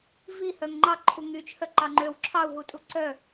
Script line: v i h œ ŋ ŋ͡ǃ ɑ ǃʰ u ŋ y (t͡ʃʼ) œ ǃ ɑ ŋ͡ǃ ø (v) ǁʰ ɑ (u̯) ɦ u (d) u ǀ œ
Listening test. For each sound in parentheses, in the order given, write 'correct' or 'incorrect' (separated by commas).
incorrect, incorrect, correct, incorrect